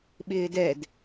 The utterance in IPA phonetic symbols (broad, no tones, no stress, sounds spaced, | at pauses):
ɓ ɪː d ɛ d